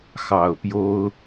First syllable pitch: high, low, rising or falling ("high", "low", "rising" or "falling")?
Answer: low